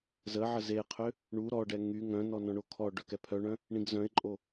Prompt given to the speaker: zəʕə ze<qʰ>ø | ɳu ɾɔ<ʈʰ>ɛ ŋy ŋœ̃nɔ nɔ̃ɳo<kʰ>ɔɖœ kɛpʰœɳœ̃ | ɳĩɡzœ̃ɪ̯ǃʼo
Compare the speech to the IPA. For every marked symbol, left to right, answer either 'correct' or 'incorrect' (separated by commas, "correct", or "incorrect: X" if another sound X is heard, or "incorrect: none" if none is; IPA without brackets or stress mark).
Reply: correct, incorrect: ɖ, correct